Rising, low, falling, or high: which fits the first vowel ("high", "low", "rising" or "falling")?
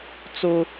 high